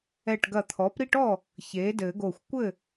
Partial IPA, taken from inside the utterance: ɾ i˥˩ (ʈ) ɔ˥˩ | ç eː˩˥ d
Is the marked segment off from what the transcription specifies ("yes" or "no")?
no